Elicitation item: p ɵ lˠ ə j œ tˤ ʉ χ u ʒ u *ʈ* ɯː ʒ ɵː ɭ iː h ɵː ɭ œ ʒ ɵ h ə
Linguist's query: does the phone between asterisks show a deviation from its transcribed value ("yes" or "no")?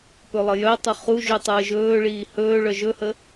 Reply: yes